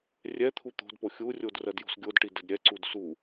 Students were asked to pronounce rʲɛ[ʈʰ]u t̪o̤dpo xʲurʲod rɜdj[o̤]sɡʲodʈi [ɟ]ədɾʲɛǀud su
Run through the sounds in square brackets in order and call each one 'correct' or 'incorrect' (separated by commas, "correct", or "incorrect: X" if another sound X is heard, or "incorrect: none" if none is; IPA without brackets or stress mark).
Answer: incorrect: t̪ʰ, correct, incorrect: d